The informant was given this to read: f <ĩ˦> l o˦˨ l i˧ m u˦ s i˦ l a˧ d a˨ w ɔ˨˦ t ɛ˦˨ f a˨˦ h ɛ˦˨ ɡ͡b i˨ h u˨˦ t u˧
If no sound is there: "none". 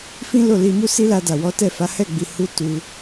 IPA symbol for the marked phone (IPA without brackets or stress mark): ĩ˦